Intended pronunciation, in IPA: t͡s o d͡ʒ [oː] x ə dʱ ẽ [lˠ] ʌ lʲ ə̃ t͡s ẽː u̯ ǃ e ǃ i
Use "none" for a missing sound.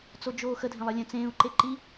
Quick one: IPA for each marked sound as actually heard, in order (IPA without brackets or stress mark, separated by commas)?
oː, lˠ